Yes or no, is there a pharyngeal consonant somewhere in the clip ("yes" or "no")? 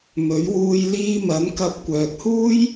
no